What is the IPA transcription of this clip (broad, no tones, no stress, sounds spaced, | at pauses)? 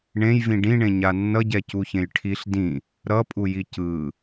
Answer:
ɳ ẽ j v ĩ ɖ ĩ ɳ ẽ ɲ a nː ʌ ɟ ɛ c u ç ẽ j ʈʰ i ɬ d ĩ | ɾ ʌ pʼ u j i c ɯ